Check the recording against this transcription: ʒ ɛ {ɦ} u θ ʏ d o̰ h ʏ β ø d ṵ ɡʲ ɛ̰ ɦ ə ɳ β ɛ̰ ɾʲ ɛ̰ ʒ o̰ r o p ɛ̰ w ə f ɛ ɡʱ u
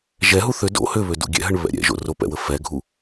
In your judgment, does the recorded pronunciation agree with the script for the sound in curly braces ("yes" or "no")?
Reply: yes